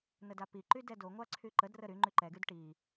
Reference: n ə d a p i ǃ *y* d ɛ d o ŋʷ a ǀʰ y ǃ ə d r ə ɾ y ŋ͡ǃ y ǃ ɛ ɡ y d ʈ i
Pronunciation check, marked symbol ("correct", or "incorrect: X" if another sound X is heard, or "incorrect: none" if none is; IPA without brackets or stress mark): correct